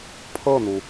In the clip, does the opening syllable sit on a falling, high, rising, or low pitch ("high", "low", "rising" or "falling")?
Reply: falling